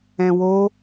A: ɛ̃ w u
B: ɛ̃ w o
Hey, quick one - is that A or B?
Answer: B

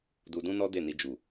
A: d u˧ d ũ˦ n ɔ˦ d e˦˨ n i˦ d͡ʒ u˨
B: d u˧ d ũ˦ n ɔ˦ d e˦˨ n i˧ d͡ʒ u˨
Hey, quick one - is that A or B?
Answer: B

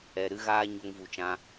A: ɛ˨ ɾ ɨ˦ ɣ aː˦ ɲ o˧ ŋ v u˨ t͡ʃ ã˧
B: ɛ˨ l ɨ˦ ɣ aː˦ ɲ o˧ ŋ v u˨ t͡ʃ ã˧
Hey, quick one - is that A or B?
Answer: A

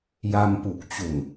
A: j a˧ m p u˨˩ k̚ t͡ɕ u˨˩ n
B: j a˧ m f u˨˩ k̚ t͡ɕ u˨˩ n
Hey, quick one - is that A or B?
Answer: A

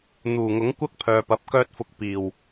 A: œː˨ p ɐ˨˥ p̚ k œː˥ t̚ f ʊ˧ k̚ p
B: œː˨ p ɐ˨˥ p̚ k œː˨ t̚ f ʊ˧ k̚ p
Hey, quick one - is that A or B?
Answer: A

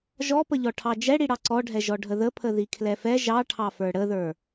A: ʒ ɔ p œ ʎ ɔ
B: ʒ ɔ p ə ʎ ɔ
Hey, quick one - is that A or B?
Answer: B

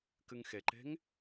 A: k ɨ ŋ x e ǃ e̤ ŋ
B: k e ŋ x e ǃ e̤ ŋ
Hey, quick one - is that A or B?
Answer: A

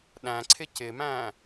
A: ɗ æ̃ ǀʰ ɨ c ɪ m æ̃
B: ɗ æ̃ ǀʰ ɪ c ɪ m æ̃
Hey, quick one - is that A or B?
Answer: B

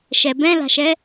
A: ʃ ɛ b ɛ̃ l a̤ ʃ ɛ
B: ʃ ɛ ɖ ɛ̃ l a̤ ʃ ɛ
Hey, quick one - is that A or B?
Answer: A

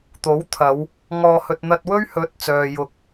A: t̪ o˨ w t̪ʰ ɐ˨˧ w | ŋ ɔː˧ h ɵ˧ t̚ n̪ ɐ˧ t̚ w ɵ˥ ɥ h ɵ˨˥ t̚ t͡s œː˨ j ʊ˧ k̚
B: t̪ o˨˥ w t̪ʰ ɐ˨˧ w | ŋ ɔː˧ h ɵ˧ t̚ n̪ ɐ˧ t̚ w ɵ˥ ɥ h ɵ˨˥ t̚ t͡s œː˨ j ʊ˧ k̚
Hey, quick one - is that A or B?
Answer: B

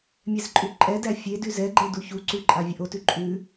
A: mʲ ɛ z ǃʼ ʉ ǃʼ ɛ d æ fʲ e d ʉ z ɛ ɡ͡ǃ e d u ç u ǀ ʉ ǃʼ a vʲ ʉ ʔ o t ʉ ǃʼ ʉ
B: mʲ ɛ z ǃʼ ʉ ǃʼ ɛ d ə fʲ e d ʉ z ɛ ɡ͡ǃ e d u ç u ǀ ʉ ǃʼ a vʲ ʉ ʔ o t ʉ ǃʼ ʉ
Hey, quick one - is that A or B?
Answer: A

